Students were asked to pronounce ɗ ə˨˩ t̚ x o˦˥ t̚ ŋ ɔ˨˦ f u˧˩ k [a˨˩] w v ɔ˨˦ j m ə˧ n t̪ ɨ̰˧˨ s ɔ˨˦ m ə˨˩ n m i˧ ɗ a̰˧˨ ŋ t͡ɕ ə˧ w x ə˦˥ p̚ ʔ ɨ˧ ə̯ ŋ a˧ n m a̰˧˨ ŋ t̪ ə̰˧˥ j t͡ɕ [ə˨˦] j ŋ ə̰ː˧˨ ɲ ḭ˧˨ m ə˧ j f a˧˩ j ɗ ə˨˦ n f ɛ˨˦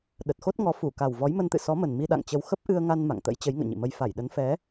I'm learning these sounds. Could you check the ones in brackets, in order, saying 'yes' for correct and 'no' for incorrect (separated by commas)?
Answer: yes, yes